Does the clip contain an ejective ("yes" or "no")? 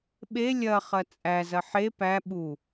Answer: yes